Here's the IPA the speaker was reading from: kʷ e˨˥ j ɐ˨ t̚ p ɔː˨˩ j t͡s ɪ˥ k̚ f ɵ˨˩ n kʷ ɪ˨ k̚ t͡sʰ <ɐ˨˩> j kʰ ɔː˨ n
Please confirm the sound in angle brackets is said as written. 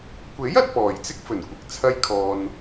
no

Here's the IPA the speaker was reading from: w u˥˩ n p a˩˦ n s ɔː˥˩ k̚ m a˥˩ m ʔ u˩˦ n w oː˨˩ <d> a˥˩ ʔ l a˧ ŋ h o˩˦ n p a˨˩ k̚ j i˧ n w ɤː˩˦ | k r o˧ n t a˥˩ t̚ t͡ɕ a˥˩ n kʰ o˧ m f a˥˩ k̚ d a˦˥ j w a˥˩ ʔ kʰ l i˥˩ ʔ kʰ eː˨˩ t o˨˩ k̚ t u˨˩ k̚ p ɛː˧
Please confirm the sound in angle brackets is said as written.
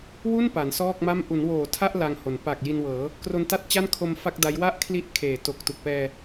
no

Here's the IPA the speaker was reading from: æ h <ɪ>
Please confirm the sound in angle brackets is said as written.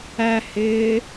no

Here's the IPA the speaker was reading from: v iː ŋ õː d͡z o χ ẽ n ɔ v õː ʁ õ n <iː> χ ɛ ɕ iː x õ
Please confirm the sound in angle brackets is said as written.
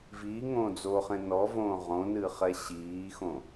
no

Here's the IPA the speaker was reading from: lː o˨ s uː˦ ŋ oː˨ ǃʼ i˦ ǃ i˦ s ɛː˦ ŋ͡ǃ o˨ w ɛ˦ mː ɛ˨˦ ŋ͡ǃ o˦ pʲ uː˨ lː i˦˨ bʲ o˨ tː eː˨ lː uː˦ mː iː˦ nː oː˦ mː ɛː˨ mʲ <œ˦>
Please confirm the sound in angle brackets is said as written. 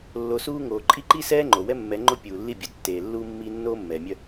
yes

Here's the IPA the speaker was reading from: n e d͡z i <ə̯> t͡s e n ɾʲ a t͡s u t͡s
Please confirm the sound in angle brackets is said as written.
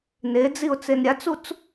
no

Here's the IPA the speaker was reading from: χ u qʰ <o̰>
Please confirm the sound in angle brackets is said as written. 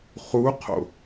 yes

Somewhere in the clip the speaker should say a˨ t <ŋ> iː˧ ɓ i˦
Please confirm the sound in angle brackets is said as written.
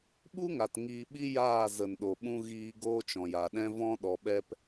yes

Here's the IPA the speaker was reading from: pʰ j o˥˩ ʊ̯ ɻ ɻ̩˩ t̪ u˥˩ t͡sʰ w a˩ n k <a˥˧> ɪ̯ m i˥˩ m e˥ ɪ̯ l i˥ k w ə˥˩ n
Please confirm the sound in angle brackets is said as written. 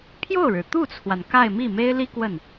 yes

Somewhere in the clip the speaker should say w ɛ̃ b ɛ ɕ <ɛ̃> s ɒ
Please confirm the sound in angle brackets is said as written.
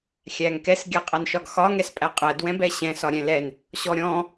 yes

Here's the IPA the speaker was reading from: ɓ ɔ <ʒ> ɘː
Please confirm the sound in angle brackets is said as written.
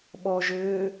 yes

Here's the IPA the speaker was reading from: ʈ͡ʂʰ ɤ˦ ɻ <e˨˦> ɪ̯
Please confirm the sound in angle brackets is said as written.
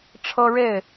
no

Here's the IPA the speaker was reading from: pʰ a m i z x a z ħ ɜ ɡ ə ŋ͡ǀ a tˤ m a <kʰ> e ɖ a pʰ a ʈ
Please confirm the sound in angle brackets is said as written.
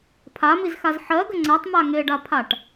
no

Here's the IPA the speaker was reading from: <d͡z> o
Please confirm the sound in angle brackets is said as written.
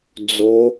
yes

